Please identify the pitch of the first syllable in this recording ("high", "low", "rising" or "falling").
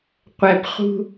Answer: low